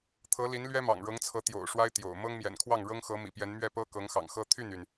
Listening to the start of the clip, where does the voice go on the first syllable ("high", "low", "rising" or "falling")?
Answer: rising